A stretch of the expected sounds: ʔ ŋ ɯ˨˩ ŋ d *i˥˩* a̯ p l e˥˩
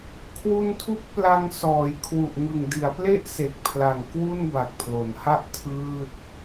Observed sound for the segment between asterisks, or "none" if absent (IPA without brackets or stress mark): i˩˦